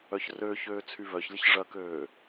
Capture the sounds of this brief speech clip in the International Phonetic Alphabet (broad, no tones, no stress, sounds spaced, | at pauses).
œ ç r øː ç øː t͡sʰ y β œ ç lʲ ɐ ç ʐ ɐ k øː